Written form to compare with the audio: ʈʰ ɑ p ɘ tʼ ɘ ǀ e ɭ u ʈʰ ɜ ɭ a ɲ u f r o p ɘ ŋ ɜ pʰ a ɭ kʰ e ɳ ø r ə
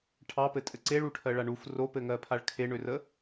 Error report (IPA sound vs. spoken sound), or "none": ɲ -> ɳ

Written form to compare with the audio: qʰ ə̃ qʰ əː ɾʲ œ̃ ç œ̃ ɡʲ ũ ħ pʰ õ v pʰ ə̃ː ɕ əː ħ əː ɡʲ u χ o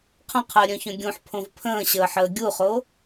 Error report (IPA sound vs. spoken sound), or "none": none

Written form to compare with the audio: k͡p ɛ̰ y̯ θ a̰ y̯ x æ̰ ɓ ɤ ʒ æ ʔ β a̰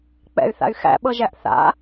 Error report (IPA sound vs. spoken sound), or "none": β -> θ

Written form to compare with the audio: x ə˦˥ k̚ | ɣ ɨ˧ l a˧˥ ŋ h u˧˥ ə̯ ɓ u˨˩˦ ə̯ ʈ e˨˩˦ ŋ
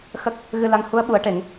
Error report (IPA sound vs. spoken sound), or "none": none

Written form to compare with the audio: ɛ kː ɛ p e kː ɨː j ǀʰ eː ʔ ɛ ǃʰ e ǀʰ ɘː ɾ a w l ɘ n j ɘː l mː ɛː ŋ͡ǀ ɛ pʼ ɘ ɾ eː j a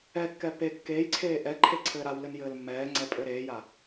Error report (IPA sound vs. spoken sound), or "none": ɨː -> eː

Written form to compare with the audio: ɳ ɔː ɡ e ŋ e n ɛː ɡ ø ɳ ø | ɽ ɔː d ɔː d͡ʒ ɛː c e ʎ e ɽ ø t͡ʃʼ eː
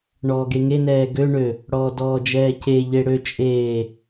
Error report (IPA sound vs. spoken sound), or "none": none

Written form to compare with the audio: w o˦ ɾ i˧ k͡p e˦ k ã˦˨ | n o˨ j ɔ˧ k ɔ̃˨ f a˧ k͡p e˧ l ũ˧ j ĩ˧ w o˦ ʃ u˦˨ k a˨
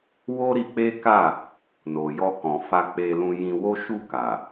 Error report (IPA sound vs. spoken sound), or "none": ã˦˨ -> a˦˨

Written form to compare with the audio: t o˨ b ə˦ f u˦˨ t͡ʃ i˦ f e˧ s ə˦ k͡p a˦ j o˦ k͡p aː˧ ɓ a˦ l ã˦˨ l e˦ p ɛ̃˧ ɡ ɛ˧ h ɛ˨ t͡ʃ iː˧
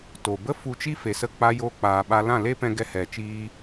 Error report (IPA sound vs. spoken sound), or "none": u˦˨ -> u˧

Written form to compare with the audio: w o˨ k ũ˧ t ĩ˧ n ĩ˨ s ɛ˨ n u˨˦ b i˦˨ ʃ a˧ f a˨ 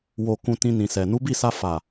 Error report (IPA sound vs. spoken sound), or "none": ʃ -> s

